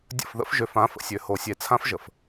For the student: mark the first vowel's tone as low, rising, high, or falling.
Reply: falling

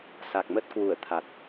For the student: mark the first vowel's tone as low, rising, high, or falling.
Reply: low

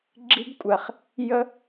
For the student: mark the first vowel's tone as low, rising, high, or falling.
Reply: high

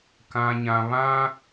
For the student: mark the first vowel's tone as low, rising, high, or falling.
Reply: low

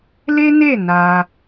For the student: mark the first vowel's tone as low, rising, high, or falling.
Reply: high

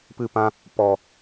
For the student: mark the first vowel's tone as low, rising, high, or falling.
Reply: falling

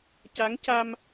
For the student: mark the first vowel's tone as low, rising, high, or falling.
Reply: rising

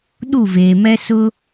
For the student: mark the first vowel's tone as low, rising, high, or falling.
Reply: falling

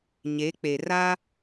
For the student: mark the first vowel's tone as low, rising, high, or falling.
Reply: rising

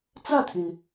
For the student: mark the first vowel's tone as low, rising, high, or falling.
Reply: falling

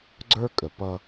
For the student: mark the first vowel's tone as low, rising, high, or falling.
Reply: high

